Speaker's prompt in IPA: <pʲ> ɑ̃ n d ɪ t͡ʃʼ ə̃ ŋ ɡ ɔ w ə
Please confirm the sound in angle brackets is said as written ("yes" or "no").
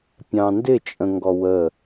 yes